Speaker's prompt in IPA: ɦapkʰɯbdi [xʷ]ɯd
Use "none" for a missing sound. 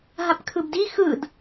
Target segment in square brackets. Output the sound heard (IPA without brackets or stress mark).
x